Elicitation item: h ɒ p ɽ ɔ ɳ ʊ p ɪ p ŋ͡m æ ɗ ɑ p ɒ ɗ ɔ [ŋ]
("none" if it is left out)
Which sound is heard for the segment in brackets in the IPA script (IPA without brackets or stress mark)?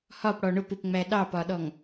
ŋ